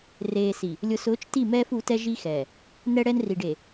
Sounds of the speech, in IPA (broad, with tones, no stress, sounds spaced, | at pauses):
r eː˨ s i˨ | lʲ ʊ˨ s ʊː˨˦ t͡ʃ t i˦˨ m ɛː˦ f u˨˦ t ɛ˦ ʒ i˦ x ɛː˨ | n ɛ˦ ɽ ɛ˦ n r i˨ ɖ e˨